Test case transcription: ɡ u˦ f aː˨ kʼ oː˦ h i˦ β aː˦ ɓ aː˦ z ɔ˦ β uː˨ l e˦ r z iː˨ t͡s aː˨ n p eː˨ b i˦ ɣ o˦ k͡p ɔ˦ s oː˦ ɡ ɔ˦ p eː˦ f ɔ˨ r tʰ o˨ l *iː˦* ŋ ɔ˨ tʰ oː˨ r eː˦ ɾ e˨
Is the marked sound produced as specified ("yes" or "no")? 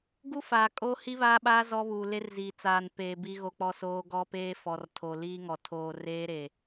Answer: yes